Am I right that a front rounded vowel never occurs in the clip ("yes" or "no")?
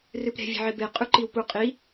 yes